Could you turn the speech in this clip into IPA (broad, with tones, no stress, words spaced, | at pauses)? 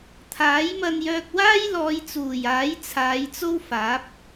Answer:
t̪ʰaː˨˥jmɐ˧njœː˧k̚waː˥j lɔː˨˧jt͡suː˨˩jaː˨˥j t͡sʰaː˨˧jt͡so˥wfaː˨˥p̚